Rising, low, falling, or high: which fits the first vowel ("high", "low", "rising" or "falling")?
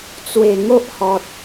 low